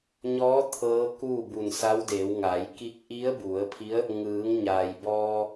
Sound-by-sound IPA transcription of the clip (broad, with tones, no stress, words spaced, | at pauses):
ɲɔː˧˥ t̪ʰɤː˧˥kuː˥˨ bu˧˩nsa˧˥wdeː˩˧w ŋa˩˧jki˧˥k̚ ʔi˧˥ə̯bu˩˧ə̯pʰi˧˥ə̯ | ŋɯː˩˧ŋ ɲa˩jbɔː˧